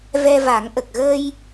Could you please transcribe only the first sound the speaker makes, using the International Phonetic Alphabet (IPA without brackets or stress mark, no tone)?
v